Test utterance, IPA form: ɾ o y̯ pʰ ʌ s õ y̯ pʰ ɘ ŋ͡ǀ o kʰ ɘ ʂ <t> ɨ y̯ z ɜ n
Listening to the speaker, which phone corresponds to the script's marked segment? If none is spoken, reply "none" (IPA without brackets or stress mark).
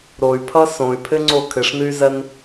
n